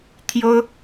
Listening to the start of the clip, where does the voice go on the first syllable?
high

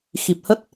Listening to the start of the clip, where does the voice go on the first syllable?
low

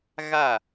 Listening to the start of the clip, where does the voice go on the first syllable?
falling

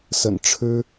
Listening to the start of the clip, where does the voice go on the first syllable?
low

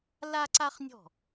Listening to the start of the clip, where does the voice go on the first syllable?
high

